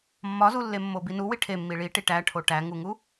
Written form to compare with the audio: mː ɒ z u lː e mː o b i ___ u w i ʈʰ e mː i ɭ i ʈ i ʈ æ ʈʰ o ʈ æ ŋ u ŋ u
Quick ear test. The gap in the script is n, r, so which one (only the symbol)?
n